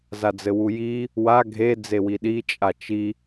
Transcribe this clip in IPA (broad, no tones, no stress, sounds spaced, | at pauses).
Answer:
z a d͡z ɘ w u j i | w a ɡʱ e d͡z e w i ɗ i t͡ʃʼ a t͡ʃ i